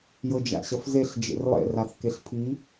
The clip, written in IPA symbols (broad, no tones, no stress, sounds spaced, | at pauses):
j ɤ d͡ʒ a̰ ɕ ɐ f z e ɬ d͡ʒ ḛ r lˠ ḛ r a θ k e ɬ pʰ i